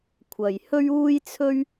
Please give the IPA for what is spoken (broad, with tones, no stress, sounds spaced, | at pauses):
kʷʰ ɐ˧ j h ɵ˥ ɥ uː˥ j t͡sʰ ɵ˥ ɥ